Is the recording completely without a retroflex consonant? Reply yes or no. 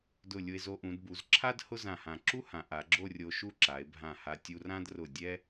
yes